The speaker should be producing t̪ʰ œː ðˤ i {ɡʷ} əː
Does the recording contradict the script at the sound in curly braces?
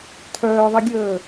yes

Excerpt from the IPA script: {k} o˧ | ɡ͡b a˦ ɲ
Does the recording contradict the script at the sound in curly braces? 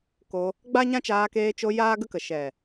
no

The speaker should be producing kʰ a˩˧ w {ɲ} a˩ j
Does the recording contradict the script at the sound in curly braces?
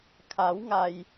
yes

